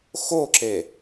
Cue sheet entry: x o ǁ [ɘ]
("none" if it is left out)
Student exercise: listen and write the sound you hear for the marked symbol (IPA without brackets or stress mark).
e